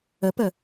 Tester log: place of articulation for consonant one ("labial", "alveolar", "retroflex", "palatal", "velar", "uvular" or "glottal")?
labial